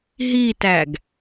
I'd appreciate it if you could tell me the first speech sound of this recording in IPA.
ɦ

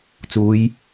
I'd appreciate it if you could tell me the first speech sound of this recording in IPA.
t͡s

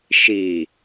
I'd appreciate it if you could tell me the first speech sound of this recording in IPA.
ʃ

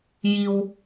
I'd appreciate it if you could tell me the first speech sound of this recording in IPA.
j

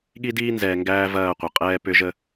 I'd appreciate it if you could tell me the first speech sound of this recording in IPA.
ɠ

